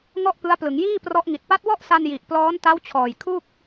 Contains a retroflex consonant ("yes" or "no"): no